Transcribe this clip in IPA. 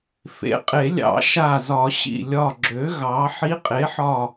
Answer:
fḛ˩˥qʼe˨˩˦lʲɑ̰˨˩˦ ʃa˧˩zɒ˨˩˦ ɕḭ˧˩lʲɒ˧˩ɡ͡ǁø˩˥ ɣɑ˩˥ ħi˧˥qʼe˩˥ħɒ˧˩

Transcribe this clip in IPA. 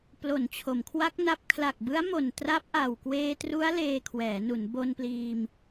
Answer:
plo˩˦n t͡ɕʰo˩˦mkʰwa˦˥k̚na˦˥p̚ kʰla˨˩k̚bɯ˦˥a̯mo˨˩n tra˦˥p̚ʔa˨˩w kweː˧tru˦˥a̯ leː˧kʰwɛː˩˦nu˩˦n bo˧npliː˧m

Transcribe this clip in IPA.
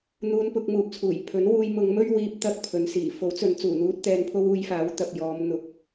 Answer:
n̪uː˧npʊ˧k̚muː˨p̚t͡sʰuː˨˩j pʰɵ˨˥nwuː˧j mʊ˨˧ŋmɵ˥ɥwiː˧p̚ t̪ɐ˥k̚ pʰɵ˨˧n siː˨˩ fo˨˥wt͡sɵ˨˧n t͡suː˨˩n̪uː˧t̚ t̪ɛː˧npʰo˥wuː˧j faː˨˥wt̪ɐ˨p̚jɔː˨˧m n̪ʊ˨˥k̚

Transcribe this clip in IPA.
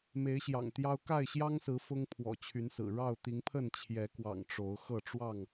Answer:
me˨˦ɪ̯ɕjɑ̰˨˩ŋt̪jɑ˦ʊ̯ ka˥˨ɪ̯ɕjɑ˦ŋsɹ̩˨˦ fʊ˦ŋpʰwɔ̰˨˩t͡ɕʰy˨˦nsɹ̩˨˩ ɻɑ˥˨ʊ̯ t̪i˨˦ŋpʰə˥˨n t͡ɕʰjɛ˨˦kwɑ̰˨˩ŋ ʈ͡ʂo˨˦ʊ̯ xɤ˥˨ʈ͡ʂwɑ˥˨ŋ

